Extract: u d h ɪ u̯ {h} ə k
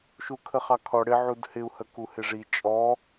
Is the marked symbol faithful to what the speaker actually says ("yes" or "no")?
yes